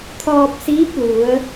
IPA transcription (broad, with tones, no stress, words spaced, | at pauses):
t̪ʰɔː˧p̚siː˧˥p̚lu˩˧ə̯